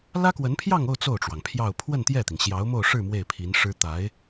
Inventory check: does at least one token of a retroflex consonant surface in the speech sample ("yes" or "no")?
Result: yes